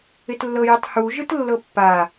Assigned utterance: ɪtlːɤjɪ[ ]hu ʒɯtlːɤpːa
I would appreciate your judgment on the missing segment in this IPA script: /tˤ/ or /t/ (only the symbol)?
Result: tˤ